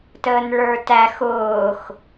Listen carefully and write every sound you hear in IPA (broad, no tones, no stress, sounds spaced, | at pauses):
t əː n ɭ ə˞ t æ x ʊː x